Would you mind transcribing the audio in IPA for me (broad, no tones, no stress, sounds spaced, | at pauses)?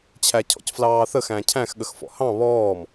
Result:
t͡ɕʰ æ cʰ ɔ̰ c f l ɑː θ ə x æ̃ cʰ æ̃ x ɠ ə x f ɔ̰ h ɑ̃ β ɔː m